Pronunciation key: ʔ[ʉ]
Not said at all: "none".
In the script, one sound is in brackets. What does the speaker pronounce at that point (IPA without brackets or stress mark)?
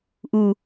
u